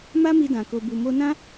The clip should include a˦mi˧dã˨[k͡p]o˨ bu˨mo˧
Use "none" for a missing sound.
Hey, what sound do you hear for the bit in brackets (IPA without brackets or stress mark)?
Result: k